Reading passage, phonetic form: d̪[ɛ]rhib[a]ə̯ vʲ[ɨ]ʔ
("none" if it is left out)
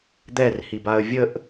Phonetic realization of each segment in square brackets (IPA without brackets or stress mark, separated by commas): ɛ, a, ə